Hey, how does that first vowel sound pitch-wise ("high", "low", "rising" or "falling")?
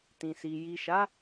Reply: low